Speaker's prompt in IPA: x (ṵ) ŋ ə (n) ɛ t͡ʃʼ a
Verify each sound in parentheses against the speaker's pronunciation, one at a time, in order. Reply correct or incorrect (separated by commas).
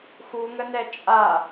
incorrect, correct